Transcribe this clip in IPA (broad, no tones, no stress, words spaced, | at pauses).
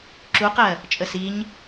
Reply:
ǁuqɜ | t͡ʃʼəsiɲ